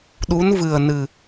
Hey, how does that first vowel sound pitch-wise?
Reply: rising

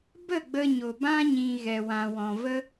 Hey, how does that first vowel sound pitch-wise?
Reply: falling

